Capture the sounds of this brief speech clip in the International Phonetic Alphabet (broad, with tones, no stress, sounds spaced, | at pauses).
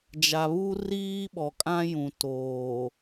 d͡ʒ a˨ β u˦ r iː˦ ɓ ɔ˨ kʼ ã˦ j ũ˨ t oː˨